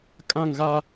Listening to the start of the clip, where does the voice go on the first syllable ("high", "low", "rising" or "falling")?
falling